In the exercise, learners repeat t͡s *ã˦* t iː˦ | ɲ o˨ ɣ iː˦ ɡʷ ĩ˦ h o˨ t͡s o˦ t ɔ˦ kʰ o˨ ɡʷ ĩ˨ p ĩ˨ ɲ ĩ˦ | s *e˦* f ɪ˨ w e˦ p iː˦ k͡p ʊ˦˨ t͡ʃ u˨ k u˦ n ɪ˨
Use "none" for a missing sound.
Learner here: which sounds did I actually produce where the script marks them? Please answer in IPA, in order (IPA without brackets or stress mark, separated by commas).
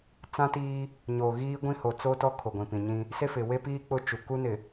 ã˦, e˦